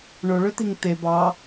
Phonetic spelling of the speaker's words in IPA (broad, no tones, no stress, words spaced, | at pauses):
ɳoɭøt̪iŋ t̪e bɑ